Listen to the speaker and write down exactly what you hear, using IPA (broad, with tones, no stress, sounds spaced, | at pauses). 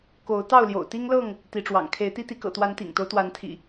k o˨˦ ʊ̯ t̪ ɑ˥˨ ʊ̯ l j o̰˨˩ ʊ̯ t̪ i˦ ŋ l ɤ˥˨ ŋ | t̪ i˨˦ ʈ͡ʂ w ɑ̰˨˩ ŋ kʰ e˨˦ ɪ̯ t̪ i˦ t̪ i˨˦ k ɤ̰˨˩ t̪ w a˨˦ n t̪ ḭ˨˩ ŋ t̪ o˦ ʊ̯ t̪ w a˨˦ n t̪ʰ ḭ˨˩